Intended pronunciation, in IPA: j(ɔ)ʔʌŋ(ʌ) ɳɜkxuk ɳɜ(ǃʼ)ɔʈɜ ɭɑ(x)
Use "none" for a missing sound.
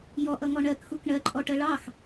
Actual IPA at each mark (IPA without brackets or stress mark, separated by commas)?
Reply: ɔ, ɔ, ǃʼ, x